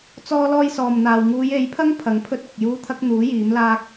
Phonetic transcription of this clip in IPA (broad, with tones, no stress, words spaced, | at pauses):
t͡sɔː˥lɔː˥jsɔː˨mn̪aː˨w ŋuː˨˧je˨˥jpʰɐ˥ŋ pʰɐ˨˥ŋ pʰɵ˥t̚ʊ˨k̚ juː˥t̪ʰɐ˥k̚ n̪uː˨˥ jiː˨˥mlaː˥k̚